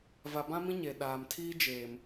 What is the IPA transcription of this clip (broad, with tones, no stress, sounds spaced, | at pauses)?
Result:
v a˨ b ã˦ m ĩ˦ ɲ e˨ ɗ aː˨ m tʰ iː˦ d͡ʒ eː˨ m